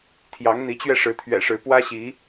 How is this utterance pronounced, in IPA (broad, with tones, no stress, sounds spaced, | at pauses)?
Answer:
t̪ʰ j ɑ˨˦ ŋ n̪ i˨˦ t͡ɕ ɥ ɛ˧ ʂ ɻ̩˨˦ t̪ʰ ɥ ɛ̰˨˩ ʂ ɻ̩˨˦ p w ä˦ ɕ i˨˦